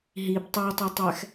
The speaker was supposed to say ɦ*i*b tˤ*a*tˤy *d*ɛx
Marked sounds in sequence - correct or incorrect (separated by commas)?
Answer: correct, correct, incorrect